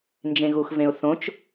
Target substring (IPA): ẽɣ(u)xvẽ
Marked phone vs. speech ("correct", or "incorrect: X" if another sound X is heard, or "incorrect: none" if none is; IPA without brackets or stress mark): correct